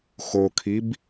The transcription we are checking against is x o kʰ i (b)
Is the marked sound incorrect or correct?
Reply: correct